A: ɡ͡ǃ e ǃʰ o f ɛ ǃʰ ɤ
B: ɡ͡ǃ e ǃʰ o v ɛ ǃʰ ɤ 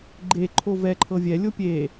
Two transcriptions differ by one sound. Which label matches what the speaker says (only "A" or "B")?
B